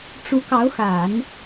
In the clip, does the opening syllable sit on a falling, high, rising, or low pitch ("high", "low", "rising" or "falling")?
rising